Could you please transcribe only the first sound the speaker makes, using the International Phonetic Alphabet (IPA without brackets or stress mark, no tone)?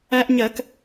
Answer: æ